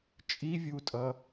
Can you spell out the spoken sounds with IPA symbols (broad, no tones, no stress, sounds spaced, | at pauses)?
t͡ʃʼ i vʲ u tʼ ʌ